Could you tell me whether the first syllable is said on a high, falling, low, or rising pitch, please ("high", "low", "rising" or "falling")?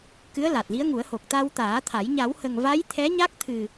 rising